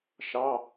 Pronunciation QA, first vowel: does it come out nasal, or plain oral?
oral